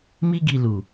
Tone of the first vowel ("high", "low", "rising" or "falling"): high